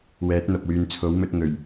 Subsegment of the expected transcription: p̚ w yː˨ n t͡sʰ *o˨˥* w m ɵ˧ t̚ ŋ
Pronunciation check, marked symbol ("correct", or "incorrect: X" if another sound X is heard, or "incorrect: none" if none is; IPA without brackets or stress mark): correct